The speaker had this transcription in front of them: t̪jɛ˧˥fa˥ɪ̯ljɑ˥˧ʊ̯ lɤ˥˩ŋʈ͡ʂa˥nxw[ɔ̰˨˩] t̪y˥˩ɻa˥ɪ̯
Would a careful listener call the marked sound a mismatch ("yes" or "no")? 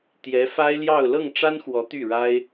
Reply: yes